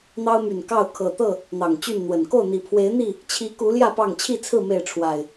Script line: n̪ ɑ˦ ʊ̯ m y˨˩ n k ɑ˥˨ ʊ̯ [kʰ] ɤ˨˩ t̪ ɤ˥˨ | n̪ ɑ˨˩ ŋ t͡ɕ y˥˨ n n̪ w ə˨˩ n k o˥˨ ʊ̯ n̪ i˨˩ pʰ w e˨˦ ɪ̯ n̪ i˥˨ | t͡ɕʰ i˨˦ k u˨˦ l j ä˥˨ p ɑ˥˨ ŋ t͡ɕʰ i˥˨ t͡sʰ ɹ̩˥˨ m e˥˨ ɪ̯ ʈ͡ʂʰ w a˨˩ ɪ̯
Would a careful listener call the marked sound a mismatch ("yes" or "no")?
no